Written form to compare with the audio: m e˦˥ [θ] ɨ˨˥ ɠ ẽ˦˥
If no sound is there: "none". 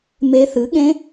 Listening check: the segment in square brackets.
θ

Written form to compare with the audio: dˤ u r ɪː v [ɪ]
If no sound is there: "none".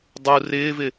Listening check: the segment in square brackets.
ɪ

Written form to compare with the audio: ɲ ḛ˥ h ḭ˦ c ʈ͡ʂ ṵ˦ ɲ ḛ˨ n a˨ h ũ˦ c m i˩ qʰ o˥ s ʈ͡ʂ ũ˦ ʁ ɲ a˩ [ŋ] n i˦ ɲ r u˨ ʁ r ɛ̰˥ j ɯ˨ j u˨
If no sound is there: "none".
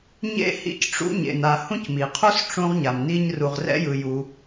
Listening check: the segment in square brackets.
m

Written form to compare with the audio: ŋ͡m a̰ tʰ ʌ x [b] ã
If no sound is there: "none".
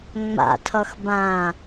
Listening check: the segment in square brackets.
b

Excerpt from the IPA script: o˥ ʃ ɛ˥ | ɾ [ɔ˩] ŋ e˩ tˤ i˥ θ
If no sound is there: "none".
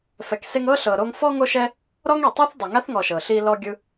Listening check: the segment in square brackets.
ɔ˥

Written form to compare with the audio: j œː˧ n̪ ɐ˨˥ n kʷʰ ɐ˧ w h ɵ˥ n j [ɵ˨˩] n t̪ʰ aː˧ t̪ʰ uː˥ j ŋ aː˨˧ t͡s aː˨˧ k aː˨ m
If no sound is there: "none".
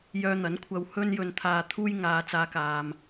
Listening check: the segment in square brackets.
ɵ˧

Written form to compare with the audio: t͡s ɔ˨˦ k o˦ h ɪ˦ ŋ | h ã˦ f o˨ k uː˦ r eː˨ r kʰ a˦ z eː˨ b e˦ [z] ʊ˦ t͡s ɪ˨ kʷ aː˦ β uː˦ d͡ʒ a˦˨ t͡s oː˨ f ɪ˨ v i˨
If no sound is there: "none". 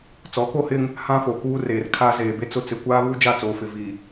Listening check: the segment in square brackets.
t͡s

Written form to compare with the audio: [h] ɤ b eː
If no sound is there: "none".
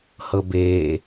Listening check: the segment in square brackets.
h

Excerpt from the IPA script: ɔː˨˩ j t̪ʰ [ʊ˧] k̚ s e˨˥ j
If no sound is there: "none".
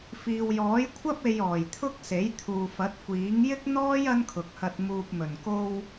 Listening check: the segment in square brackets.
ʊ˥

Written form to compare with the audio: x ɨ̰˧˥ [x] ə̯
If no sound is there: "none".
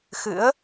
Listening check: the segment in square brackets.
none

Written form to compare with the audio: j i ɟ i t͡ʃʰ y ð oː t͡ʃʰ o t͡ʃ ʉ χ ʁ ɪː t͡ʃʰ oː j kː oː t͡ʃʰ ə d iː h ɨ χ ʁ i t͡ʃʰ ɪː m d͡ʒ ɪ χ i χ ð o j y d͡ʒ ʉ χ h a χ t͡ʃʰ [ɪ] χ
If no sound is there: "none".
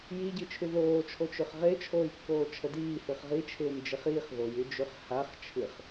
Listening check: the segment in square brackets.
ɨ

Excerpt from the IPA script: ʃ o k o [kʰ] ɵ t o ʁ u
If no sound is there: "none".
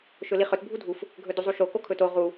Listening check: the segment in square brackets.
kʰ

